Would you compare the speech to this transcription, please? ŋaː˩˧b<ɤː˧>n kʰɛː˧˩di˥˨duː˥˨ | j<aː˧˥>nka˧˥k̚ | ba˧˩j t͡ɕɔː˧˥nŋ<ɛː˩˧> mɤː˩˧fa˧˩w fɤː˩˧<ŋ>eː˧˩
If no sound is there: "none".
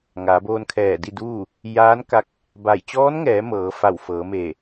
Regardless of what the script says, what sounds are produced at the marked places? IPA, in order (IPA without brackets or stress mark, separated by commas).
oː˧, aː˧˥, ɛː˩˧, m